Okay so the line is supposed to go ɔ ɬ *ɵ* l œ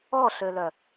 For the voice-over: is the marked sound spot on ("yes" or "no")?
no